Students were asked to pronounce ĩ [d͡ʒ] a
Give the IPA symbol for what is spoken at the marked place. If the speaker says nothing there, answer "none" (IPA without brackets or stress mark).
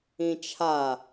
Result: t͡ʃʰ